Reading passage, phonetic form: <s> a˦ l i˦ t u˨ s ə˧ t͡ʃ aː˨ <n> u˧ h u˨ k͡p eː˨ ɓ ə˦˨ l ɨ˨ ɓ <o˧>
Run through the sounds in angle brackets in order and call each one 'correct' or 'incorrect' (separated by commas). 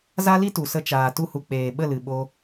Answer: incorrect, incorrect, correct